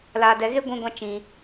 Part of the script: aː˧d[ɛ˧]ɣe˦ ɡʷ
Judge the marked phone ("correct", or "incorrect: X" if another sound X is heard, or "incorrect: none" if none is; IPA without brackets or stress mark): correct